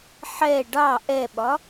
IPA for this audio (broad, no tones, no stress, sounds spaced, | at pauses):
ħ ɛ ɖ ɑ ʔ ɛ ɓ ɒ